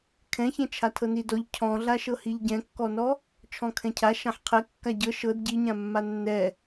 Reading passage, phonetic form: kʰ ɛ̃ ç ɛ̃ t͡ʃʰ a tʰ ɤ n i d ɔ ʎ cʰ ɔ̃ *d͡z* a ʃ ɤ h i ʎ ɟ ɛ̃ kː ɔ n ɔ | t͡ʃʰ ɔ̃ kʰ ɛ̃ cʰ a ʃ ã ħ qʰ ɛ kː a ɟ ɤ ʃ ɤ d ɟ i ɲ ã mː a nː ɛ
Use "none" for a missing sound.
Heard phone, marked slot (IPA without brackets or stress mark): ɮ